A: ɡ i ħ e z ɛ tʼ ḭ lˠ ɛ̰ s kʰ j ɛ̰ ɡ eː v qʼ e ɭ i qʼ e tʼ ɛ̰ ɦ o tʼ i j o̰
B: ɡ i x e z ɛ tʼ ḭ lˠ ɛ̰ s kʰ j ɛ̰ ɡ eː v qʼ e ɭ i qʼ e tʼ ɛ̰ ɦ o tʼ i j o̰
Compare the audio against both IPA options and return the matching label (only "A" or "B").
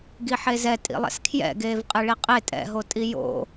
A